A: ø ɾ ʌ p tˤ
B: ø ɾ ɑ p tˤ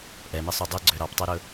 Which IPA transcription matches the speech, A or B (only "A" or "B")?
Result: B